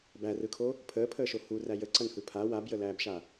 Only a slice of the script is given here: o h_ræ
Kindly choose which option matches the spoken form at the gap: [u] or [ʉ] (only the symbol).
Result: u